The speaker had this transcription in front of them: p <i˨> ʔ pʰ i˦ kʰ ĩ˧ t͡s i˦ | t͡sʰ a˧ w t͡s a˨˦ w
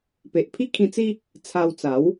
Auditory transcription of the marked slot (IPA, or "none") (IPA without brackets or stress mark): e˨